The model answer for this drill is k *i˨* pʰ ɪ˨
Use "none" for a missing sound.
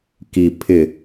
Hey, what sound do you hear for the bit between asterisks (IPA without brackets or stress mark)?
i˨